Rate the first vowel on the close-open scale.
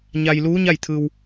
open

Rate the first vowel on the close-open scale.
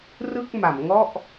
close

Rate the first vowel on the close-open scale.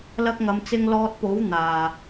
open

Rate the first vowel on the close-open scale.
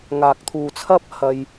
open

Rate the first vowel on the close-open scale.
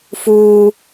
close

